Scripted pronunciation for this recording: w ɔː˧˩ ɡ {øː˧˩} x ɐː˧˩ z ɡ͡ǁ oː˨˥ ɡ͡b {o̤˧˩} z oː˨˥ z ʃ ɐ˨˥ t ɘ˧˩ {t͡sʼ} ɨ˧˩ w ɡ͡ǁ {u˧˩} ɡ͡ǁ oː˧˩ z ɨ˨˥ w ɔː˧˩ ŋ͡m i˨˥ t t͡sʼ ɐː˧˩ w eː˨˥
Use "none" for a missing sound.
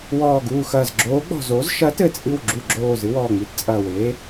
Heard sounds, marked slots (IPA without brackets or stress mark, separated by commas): uː˧˩, ɔ̤˧˩, t͡sʼ, u˧˩